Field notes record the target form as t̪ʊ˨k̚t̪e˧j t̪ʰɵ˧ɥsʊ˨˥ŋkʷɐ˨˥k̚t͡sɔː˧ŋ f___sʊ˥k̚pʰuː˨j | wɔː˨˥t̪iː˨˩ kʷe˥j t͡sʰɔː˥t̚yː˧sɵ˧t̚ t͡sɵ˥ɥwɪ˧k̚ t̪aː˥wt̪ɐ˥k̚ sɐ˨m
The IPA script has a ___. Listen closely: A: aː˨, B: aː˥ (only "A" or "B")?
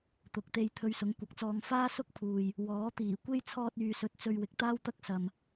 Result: B